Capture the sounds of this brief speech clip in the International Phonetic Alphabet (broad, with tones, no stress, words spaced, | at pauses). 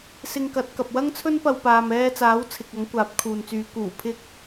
sɪ˧ŋkɐ˨˥t̚kɐ˨p̚ wɐ˥ŋt͡sʰɵ˥npɐ˧w paː˨mɛː˧t͡saː˨˥w t͡sʰɪ˨k̚ɐ˨˥ŋ kʷaː˨˥p̚kʰuː˨nt͡syː˨˧ kuː˨˩pʰɪ˥k̚